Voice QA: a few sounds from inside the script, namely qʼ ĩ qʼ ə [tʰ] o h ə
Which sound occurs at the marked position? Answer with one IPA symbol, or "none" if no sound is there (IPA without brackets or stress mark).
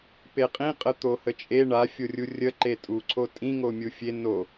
t̪